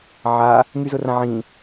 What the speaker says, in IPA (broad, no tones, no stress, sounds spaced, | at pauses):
ʕ a | ŋ y z ʊ r ã ʕ ĩ